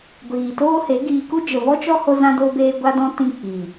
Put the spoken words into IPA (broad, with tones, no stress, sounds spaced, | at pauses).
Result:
ɡʷ iː˨ t oː˦ h e˨˦ ɡ iː˧ k u˦ d͡ʒ ə˨ v ɔ˦ t͡ʃ ɔ˦ h o˦ z ã˦ d oː˦ b eː˦ ɡʷ a˦ d ɔ̃˦ t ĩ˦ k͡p iː˨